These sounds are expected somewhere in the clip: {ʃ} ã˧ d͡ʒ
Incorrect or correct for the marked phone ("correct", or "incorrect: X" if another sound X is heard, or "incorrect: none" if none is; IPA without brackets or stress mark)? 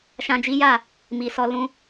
correct